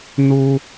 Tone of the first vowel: low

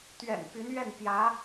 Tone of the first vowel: low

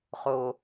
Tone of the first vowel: low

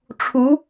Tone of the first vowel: rising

